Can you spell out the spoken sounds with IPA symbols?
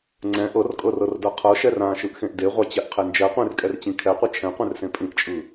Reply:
ŋ͡ǀ ɛ̃ ʔ ɤ r kʼ ɤ r ɤ r d ɤ qʰ ɤ ʃ ɛ r ã ʃ ɯ ʔ x ẽ ʔ d e ʁʷ a t͡ɕ ɛ ʔ qʰ e n d͡ʒ ɛ qʷ ẽ r kʼ ɛ r t͡ɕ ĩ kʰ ɛ qʷ e t͡ʃʰ ɛ̃ qʷ ɛ̃ r s ẽ pʼ ĩ ʔ t͡ʃʼ ɯ

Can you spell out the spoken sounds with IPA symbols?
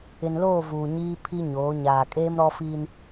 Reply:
ɪ˨ n l oː˦˨ v uː˨ ɲ iː˦ pʰ i˦ ɲ oː˨˦ ɲ aː˨ kʼ eː˦ m ɾ ɔ˦ f iː˦ n

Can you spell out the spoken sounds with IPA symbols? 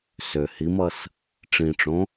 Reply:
s ø h i m ʌ s | ʈ͡ʂ ĩ ʈ͡ʂ õ

